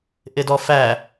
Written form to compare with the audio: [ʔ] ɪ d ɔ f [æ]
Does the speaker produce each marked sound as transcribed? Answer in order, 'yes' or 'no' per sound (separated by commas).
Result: yes, yes